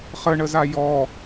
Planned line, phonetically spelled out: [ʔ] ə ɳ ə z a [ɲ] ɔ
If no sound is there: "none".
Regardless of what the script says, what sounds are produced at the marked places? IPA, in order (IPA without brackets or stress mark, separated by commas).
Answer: χ, j